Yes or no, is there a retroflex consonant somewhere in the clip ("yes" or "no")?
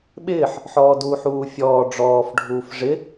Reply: yes